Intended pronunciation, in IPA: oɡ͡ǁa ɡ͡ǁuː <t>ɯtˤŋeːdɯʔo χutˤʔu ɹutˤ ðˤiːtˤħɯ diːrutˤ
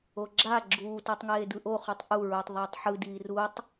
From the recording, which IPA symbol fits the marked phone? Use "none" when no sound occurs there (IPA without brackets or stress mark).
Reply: t